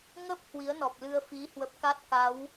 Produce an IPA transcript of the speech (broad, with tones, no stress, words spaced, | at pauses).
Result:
ŋə˦˥p̚ hwi˨˦ə̯nɔ˨˩p̚lɨ˧ə̯fi˨˦ hwə˦˥p̚ ka˦˥t̚ka˨˦w